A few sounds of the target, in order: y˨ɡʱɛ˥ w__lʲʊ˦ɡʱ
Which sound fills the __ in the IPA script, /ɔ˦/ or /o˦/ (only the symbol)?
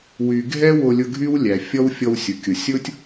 o˦